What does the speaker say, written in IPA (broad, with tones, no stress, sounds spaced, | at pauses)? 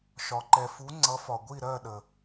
ʃ ɒ˩ ǃ ɛ˩ f u˩˧ ŋ͡ǀ ʌ˩˧ f ɒ˩ ɡʷ i˧˩ ɾ ɜ˧˩ ɗ ə˩